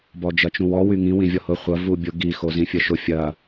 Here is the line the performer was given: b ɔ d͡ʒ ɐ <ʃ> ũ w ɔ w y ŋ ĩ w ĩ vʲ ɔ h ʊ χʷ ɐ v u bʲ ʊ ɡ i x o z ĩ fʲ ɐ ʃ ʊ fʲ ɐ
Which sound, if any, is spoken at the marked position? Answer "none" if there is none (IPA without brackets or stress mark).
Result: t͡ʃ